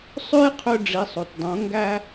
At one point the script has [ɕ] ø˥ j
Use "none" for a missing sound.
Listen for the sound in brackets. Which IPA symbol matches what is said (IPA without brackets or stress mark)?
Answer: sˤ